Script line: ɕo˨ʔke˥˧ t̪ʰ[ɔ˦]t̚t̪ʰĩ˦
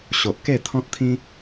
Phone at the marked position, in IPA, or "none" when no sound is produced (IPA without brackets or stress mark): ɔ̃˦